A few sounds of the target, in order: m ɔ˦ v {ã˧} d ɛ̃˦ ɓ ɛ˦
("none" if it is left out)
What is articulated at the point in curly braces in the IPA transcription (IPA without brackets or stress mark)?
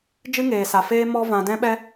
ã˧